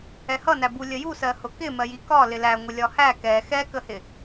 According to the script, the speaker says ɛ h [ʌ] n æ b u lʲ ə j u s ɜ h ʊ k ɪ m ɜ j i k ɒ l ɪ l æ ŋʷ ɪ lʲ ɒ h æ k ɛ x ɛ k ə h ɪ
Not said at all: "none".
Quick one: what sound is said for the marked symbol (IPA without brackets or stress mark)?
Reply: ʌ